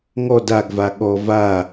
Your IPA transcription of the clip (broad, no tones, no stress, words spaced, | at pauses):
ŋɔ daɡva ɠɔ va